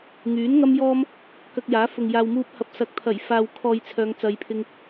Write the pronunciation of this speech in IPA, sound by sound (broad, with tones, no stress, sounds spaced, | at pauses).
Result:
ŋ yː˨˥ n ŋ ɐ˥ m j ɔː˥ m | k ɐ˧ k̚ j aː˨˥ f ʊ˨ ŋ j aː˨ w m uː˧ p̚ h ɐ˨ p̚ s ɐ˨ k̚ t̪ʰ ɐ˨˩ j f aː˨ w kʰ ɔː˨ j t͡sʰ œː˨˧ ŋ t͡s ɐ˨ j pʰ ɪ˧ ŋ